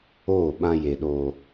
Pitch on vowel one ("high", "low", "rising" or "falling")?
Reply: falling